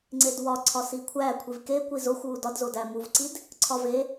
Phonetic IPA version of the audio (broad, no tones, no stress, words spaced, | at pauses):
ŋ͡ǀedwɒǀʰɒ sikʷʰæ kʷʰivke kʷizoxʷ wudɒdzo dæmuvǀid | ǀʰɒve